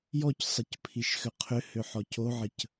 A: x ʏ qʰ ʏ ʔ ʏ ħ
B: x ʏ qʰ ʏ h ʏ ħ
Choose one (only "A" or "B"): B